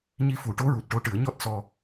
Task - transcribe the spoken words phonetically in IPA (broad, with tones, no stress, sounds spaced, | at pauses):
ɲ i˧ f u˨˩˦ ʈ o˧˥ ɹ u˨˩ t̚ ʈ o˧˥ ʈ ɨ˨˩˦ ə̯ ɲ ɔ˦˥ t̚ s ɔ˧